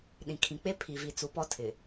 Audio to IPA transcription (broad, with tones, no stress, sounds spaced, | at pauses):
ɗ ĩ˨ kʰ ĩ˨ k͡p e˦ pʰ i˨ v i˨ t͡s u˨˦ p ɔ˦ tʰ ɪ˨